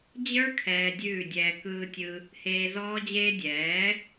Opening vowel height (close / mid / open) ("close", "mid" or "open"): mid